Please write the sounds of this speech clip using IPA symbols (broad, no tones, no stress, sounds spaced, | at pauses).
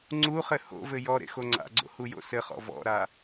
ŋ͡ǀ u χ ɘ h o̰ v ɘ j ɔ ɾ ḛ x o ŋ͡ǀ a̰ ɡ͡ǀ o̰ h u j o̰ s ɘ χ ɔ̰ v ɔ̰ ɾ a